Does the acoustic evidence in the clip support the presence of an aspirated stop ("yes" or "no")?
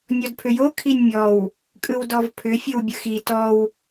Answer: yes